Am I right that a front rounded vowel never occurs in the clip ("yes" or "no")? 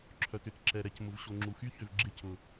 no